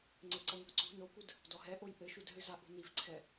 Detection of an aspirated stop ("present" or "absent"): present